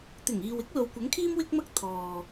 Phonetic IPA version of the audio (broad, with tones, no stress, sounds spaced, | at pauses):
t̪ ɪ˨˩ ŋ iː˨ w ɪ˥ k̚ l o˨ w kʷ ɐ˨˥ ŋ kʰ iː˥ m w ɪ˥ k̚ m ɐ˥ k̚ t̪ʰ ɔː˨